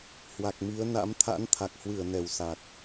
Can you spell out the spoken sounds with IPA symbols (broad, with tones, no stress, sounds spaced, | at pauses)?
h w a˨˩ k̚ m i˨˦ ə̯ n a̰˧˥ m t̪ʰ a̰˧˥ n t̪ʰ a˨˩ k̚ h w ɨ˧˩ ə̯ n ɛ˧˩ w s a˨˩ k̚